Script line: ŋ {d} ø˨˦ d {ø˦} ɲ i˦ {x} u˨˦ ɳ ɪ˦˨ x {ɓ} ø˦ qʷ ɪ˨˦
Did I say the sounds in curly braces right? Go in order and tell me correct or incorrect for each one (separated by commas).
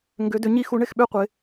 incorrect, incorrect, correct, correct